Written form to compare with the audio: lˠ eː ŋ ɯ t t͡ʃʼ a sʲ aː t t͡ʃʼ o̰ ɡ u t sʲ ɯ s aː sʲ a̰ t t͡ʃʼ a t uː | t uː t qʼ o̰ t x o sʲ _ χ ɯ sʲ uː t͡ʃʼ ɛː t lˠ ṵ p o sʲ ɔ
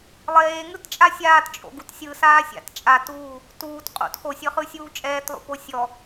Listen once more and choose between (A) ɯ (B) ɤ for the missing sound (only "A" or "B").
B